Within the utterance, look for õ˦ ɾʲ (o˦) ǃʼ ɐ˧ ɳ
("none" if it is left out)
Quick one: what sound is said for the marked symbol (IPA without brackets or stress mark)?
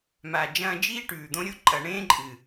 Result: o˦